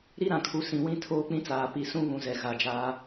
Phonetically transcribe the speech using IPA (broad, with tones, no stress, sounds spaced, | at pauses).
ɾ i˦ ɾ ã˨ kʰ u˨ s ĩ˨ w ĩ˦ tʰ oː˦ k͡p ĩ˦ t͡s aː˨ p i˨ s ũ˦ β ũ˨ z ɛ˨ ɣ a˨ d͡ʒ aː˦